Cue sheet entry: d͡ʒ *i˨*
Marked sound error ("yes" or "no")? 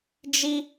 yes